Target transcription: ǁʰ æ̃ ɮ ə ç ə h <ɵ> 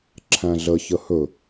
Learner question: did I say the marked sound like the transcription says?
yes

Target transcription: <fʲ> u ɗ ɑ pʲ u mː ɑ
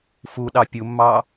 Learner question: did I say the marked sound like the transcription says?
no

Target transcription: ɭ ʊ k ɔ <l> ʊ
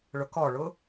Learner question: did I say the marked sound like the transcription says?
no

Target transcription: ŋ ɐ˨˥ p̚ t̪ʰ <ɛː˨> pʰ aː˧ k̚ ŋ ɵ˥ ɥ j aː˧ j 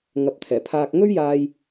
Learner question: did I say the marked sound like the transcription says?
no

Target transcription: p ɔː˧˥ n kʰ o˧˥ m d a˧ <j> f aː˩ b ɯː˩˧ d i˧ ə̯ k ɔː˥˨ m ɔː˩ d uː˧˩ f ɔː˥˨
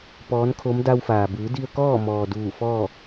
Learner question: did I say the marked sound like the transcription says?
no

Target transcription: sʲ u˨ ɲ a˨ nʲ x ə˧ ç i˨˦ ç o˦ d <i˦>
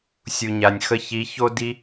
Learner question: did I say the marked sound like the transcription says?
yes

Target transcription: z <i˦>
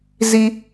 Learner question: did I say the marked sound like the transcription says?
yes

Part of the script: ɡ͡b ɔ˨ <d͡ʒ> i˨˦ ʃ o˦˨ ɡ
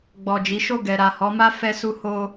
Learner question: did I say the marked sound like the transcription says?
yes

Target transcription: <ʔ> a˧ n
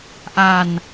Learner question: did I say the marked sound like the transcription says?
yes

